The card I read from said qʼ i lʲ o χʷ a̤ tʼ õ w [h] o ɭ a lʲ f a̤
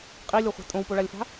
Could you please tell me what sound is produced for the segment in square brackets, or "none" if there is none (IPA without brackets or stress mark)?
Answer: p